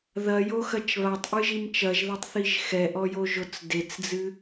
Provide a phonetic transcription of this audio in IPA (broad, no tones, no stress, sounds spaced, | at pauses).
ð ɐ j o x ɐ t͡ʃ β a tˤ ʔ ɨ ʒ i m t͡ʃ ɐ ʒ ð a tˤ θ i ʒ x ɛ ʔ ɔ j o ʒ o t͡s d e t͡s d͡z ɨ